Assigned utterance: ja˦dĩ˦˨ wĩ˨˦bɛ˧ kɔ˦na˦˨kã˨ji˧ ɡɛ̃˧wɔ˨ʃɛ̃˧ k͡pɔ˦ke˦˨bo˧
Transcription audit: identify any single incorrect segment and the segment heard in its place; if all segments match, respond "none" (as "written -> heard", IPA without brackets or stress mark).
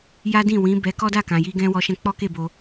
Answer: n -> d